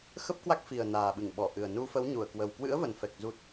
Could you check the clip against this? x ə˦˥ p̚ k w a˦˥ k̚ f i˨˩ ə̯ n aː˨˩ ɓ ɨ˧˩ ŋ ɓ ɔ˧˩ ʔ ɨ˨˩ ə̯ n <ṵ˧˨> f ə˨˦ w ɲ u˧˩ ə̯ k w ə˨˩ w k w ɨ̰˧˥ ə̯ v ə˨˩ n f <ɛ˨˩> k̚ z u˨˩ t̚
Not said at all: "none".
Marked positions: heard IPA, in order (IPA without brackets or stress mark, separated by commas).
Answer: u˧, ɛ˨˩